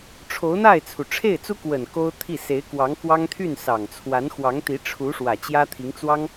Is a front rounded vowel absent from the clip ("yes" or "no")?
no